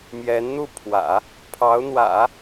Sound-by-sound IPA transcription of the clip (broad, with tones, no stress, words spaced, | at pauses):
mjɛ˧˥nn̪u˥˩pʰwä̰˨˩˦ | pʰɑ˧˥ʊ̯n̪wä̰˨˩˦